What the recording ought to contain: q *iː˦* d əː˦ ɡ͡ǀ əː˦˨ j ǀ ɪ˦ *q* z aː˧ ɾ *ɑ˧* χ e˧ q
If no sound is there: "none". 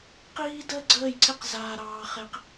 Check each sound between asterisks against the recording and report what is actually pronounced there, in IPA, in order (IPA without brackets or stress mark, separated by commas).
iː˦, q, ɑː˧